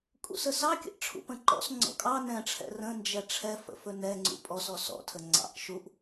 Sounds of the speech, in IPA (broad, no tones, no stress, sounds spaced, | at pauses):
kʼ ṵ s ə s ɑ kʲ ə̰ ʔ ʈ͡ʂʰ ṵ p ə̃ ǃ ɔ̰ s ŋ͡ǀ ɔ̰ kʼ ɑ n ɛ̃ ʈ͡ʂʰ ɛ̰ r ə̃ n d͡ʒ ɛ ʈ͡ʂʰ ɛ f ə̰ f ɵ n ɛ ŋ͡ǀ ṵ pʼ ɔ s ɔ s ɔ̰ tʰ ə ŋ͡ǀ ɑ̰ ʔ ʃ u ʔ